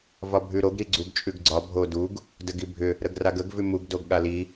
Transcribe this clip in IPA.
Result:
v ɒ bʱ ʉ ɾ o ɡ ɾ i ɡ͡ǀ u ɡ t͡ʃʼ ʉ ɡ ɡ͡ǀ ɒ bʱ o d u ɡ | d ə ɡ i bʱ ʏ | ɾ ə ɡ r a ɡ ə ɡ v ʉ m u ɡ d o ɡ ɠ a l i

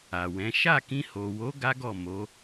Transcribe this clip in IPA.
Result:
a˨ w ɛ̃˨˦ ʃ a˦˨ k ĩ˧ h o˨ w o˨˦ ɡ a˦ ɡ ɔ˦˨ m o˨˦

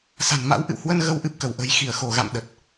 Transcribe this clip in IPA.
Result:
s a̤˨˩ n m a̰˧˥ w ʔ ɨ̰˧˨ w h w ə˧ n ɣ ə˨˦ w ʔ ɨ˨˩ p̚ k ə˧˩ w ʔ ə̤˨˩ j x i˧˩ ə̯ x o˧˩ ɣ a̰˧˨ m ɗ ə˨˩ t̚

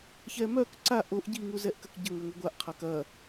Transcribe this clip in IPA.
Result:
ç ɛ m œ k ǀ a ʔ o ʔ ɟ i ŋ u z ɛ ʔ k ɐ k ɟ ə ŋ ɛ ŋʷ i ɡʷ a ʔ qʰ a k ɐ

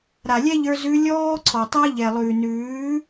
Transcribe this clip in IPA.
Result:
ɾ a˨ lʲ ɛ˦ ʎ ə˞˧ z ʉ˧ lʲ ɔː˦ ǀʰ ɔ˨ tˤ a˦ ʎ ɛ˨ lˠ ʉː˨ n ʉː˨˦

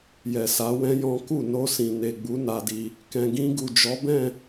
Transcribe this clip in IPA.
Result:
j ɛ˨ s a˨˦ w ɛ̃˦ j ɔ̃˦ k u˦˨ n o˧ s ĩ˨ n e˨ ɡ͡b u˨˦ n a˧ d i˧ | k ɛ̃˨ ɡ ĩ˧ ɡ u˨ d͡ʒ ɔ˨˦ b ɛ̃˦˨

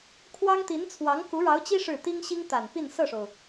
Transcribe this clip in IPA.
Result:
kʰ w ɑ˥ ŋ t̪ i˧˥ n t͡sʰ w ɑ˧˥ ŋ k u˧˥ ɻ ɑ˧˥ ʊ̯ t͡ɕ i˥ ʂ ɻ̩˥˩ t̪ i˥ ŋ ɕ i˥ ŋ t̪ a˨˩ n p i˥˧ n s ɤ˥˩ ʂ o˩ ʊ̯

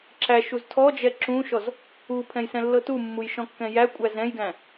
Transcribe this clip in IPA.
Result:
ǁ æ ʃ u z tʰ ɔ d͡ʒ ɛ ǁ ũ ʃ ɔ z | u pʰ ɛ̃ j s ɛ̃ lː ɤ t u mː u j ʃ ɔ̃ kː ɛ̃ j æ kʷʼ æ z ɛ̃ j ɡ æ̃

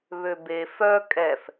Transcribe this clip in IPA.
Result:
β ø b e f œ kʼ ɛ f

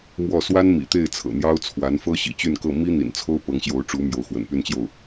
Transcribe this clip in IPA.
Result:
m w ɔ˥˩ s w a˥ n m ḭ˨˩ t̪ e˥˩ ɪ̯ t͡sʰ ɤ̰˨˩ n̪ j ɑ˥ ʊ̯ t͡sʰ w a˧˥ n f ɤ˥ ɕ ḭ˨˩ t͡ɕ y˥˧ n k ɤ˥˩ m i˥ n̪ ḭ˨˩ n t͡sʰ o˥ ʊ̯ p ɤ˧˥ ŋ ɕ j o˧˥ ʊ̯ ʈ͡ʂ u˧˥ m j o˧˥ ʊ̯ x w ə̰˨˩ n p y˥˧ n t͡ɕ j o˥˩ ʊ̯

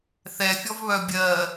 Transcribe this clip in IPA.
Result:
θ ɛ fʲ ɔ v β œ bʲ ɜ

